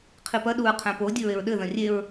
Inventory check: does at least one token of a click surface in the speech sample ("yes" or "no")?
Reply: no